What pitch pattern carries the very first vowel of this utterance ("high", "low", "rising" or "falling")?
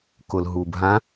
low